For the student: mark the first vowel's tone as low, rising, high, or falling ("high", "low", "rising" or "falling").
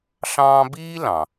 high